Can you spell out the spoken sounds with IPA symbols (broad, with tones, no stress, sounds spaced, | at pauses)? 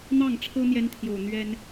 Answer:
n̪ ɑ˥˩ ŋ ʈ͡ʂʰ ɤ˥ n̪ j ɛ˥ n t̪ʰ j o˨˩ ʊ̯ n̪ ɥ ɛ˥ n